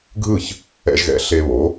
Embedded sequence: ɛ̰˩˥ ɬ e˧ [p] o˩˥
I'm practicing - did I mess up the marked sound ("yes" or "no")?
yes